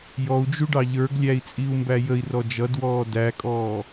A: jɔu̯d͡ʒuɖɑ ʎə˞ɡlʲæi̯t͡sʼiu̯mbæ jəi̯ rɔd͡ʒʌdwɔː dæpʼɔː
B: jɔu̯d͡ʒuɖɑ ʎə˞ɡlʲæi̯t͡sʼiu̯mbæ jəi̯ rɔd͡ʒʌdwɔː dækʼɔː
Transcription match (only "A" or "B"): B